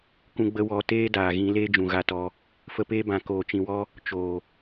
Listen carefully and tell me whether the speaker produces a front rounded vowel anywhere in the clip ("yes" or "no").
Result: no